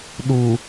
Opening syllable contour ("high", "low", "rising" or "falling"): low